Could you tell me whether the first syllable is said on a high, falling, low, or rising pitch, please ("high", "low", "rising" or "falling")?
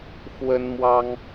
high